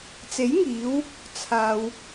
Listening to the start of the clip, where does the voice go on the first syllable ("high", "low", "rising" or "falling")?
rising